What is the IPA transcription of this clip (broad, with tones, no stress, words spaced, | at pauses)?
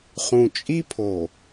χũ˨t͡ʃʼi˦pʰo˨